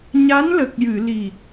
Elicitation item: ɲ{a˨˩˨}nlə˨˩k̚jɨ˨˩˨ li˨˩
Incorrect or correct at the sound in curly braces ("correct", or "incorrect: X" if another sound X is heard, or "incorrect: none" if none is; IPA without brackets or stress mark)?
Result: incorrect: a˧˥